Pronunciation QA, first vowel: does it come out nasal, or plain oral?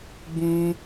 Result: nasal